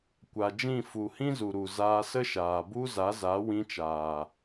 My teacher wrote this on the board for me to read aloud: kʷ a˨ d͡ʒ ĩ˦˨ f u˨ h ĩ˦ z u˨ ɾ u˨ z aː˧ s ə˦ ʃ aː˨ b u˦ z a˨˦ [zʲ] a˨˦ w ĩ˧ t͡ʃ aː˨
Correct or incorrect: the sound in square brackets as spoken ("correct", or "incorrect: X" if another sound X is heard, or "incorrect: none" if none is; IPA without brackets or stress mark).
incorrect: z